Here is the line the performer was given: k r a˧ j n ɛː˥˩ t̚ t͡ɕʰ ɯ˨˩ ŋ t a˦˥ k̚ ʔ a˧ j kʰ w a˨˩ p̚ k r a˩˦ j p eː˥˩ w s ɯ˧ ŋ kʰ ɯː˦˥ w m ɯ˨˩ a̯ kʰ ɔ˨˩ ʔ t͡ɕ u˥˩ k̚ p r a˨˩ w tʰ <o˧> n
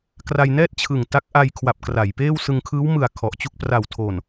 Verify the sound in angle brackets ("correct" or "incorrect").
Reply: incorrect